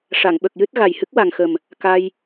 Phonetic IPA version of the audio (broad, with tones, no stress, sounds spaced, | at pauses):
ʂ a˨˩˨ ŋ ɓ ə˨˩ k̚ j ɨ˦˥ t̚ ɣ a˨˩ j h ɨ˦˥ k̚ w a˨˩ ŋ x ə˨˩ m | k a˧ j